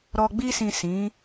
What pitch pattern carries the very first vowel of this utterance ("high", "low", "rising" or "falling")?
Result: low